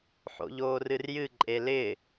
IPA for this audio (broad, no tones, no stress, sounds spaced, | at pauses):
ħ o̰ ʎ oː r ɨ r j ɨ ǃʼ e l ɪ